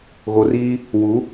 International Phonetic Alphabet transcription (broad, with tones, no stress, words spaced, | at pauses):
ɣo˨riː˦ | wu˨˦